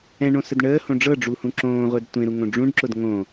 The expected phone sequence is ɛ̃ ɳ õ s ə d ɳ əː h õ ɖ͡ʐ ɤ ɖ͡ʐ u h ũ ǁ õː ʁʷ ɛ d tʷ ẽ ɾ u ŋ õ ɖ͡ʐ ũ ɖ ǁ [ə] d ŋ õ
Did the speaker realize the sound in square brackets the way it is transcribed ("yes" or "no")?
no